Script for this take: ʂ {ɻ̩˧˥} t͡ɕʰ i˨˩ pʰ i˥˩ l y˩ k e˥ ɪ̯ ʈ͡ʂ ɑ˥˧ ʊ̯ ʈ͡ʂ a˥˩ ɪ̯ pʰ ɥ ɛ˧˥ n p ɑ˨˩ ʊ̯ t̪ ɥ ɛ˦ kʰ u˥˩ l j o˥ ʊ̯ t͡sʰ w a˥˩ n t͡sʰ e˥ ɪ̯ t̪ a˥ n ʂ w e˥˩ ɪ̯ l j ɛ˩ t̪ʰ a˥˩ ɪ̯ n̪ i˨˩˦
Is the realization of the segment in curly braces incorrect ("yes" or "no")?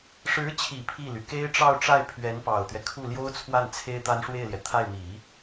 no